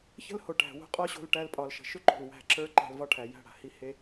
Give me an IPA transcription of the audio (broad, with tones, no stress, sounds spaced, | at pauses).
ç ə̤˦ l h o˨ ʈ æ̤˨ w o̤˦ qʼ ɒ˦ ɕ o̤˧ l ʈ æ˧ l pʼ ɒ˨ l ʃ ə̤˨ ʃ ʏ˦ ǃ o̤˨ l w æ̤˧ ǁ ə˞˦ ǃ æ̤˧ l v ɒ˦ ʈʰ æ˨ j æ̤˦˨ ɽ a̤˨ h i˦ h e˦